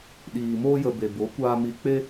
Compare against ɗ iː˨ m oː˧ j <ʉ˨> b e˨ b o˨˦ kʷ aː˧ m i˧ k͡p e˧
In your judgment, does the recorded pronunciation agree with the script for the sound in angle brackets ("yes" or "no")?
no